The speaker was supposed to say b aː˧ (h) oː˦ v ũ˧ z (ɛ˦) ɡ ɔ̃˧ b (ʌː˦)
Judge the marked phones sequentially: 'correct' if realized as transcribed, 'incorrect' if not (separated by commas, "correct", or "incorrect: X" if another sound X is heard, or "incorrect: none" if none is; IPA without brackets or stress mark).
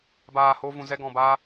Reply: correct, correct, incorrect: aː˦